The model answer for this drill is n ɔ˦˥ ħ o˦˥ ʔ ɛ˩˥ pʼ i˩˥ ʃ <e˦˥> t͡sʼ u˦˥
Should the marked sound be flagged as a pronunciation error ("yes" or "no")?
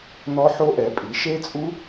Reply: no